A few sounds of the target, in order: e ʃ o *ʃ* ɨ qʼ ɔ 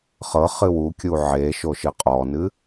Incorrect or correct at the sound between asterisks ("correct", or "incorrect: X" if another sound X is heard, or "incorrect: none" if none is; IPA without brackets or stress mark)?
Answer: correct